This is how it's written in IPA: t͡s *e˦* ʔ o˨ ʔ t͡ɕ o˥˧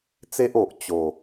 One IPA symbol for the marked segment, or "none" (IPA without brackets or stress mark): e˦